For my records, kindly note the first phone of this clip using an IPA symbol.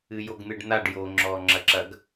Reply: ɨ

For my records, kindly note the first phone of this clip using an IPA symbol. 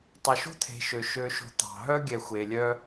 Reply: tˤ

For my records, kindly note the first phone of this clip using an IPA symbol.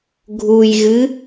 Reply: ɡʱ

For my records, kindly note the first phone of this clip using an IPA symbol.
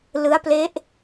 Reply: l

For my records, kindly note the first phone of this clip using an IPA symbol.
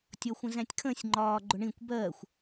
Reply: tʲ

